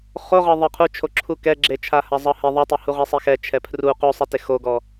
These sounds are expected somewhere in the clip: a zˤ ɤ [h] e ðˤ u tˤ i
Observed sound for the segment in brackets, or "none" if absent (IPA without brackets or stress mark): h